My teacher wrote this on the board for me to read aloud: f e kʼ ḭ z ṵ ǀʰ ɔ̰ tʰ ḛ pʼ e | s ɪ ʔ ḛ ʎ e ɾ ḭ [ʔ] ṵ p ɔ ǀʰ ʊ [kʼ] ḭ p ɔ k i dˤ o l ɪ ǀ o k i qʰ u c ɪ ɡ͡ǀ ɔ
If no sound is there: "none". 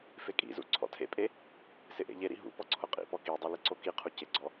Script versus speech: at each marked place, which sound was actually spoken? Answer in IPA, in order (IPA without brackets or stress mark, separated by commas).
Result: ɦ, qʼ